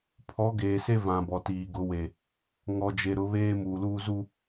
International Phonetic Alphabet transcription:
pʰ ɔ˨˦ ɡ eː˨ s e˦ v ã˨ b ɔ˨ t iː˨ ɡ ʊ˨˦ w e˨ | ŋ ɔ˨ d͡ʒ e˨ ɾ ʊ˨˦ β eː˦ m uː˨ l uː˦ z u˦˨

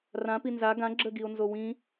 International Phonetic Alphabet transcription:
r ã p i n z a ɡ ã ɡ͡ǁ ə ɡ i o̯ n z o w ĩ

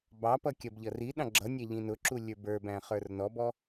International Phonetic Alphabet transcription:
b ɑ p ʌ kʲ ʌ b ʎ ʌ r i ɗ ɑ̃ ɡ͡ǁ ʌ nʲ æ ʎ ĩ n ʊ ǁ u lʲ ə˞ b ə˞ b æ̃ χ ə˞ r n ɔ b ɔ

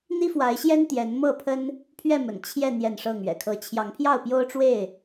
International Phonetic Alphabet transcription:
n̪ i˦ f w a˨˦ ɪ̯ ɕ j ɛ˦ n t̪ j ɛ˨˦ n m ɤ˥˨ pʰ ə˦ n | pʰ ɥ ɛ˥˨ m ə̰˨˩ n t͡ɕʰ j ɛ˥˨ n̪ j ɛ˥˨ n ʂ ɤ˥˨ ŋ ɥ ɛ̰˨˩ kʰ ɤ˦ t͡ɕʰ j ɑ˨˦ ŋ pʰ j ɑ˥˨ ʊ̯ p j o˦ ʊ̯ ʈ͡ʂ w e˥˨ ɪ̯

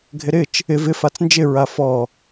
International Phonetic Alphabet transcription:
ɡʱ ɪ ɾ ɪ t͡ʃ | ɪ v ɪ f a t͡s n d͡ʒ ɪ ɹ a f ɔ

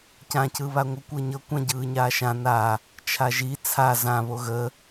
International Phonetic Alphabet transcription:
c ã c ɯ β a ŋʷ ə kʷ ɤ ɲ ɤ kʷ ã ɟ ɯː ɲ aː ʃ ã n a | t͡ʃʰ a ʒ i t͡sʰ a z ã β o ɣ ə

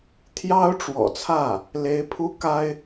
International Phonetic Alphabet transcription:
t̪ʰ j ɑ˥ ʊ̯ ʈ͡ʂ w ɔ̰˨˩ t͡sʰ ä˥˩ | l e˧˥ ɪ̯ pʰ u˥ k a˥ ɪ̯

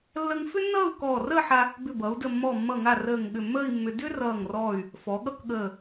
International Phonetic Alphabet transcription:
lː ə˥ ŋ f ʏ˥ nː ʌː˥˧ u̯ k ɔː˧˩ r əː˥˧ ħ a˧ | b ʏ˧˩ b ʌ˩˧ u̯ d ə˧˩ mː ɔ˧˩ mː ʌ˧˩ ŋ a˧˩ r əː˧˩ ŋ ɠ ʏ˧˩ mː əː˥˧ i̯ mː ʏ˧ d ʏ˥ r ʌː˧˩ ŋ r ɔː˧˩ y̯ | f ɔ˩˧ ɠ ʌ˥ k ɠ əː˧˩

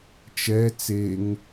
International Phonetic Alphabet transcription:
t͡ʃ ɛ t͡s e ŋ

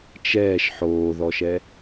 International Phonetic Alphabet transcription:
t͡ʃ ɛː ʃ ħ oː ð ɔ ʃ ɛ

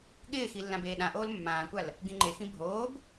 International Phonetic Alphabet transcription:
ɠ ɪː x i lː ã b eː ɗ ã ʔ oː l mː ãː kʷ a l | ɡ ĩ ŋ͡ǃ e x ĩ bʱ oː b

